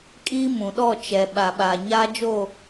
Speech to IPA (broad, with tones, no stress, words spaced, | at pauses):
kʼiː˦mũ˨ɗɔ˦˨ t͡ʃɛ˨ ɓa˨ɓaː˨ɲaː˦ d͡ʒo˦˨